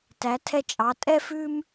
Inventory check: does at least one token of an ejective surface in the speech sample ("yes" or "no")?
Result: yes